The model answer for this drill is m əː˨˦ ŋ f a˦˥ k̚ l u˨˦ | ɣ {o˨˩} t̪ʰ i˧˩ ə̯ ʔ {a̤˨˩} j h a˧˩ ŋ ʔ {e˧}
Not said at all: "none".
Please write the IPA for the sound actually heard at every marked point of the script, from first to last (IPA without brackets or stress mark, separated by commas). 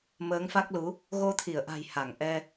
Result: o˧, a̤˨˩, ɛ˧